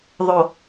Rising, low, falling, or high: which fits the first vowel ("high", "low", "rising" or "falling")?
low